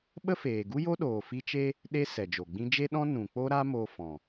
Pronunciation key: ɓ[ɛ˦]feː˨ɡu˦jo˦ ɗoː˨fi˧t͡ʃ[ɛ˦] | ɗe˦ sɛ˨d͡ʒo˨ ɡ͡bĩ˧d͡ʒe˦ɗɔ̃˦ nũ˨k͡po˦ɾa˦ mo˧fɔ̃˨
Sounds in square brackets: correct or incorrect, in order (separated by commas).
incorrect, incorrect